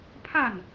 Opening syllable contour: falling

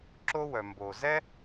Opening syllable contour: high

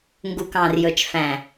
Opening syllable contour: low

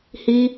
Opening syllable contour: high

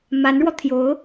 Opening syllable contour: rising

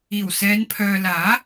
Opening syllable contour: low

